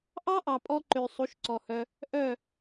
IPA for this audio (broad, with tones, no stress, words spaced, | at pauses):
ʔɑ˦ʔɑ˨pʼɔ˧ǃø˨ sˤu˨˦ʃǀɔ˨hœ˧ | ʔœ˦˨